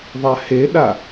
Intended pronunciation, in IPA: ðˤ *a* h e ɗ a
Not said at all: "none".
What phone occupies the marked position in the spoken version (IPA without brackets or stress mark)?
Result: a